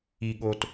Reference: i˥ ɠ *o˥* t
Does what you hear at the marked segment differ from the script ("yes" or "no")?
no